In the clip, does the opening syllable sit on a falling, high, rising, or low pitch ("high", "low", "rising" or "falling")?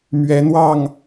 rising